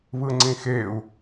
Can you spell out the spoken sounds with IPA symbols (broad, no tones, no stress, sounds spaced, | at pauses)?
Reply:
β ɯ ŋ͡ǀ ĩ x e u̯